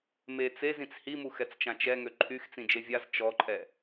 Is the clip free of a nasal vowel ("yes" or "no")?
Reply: no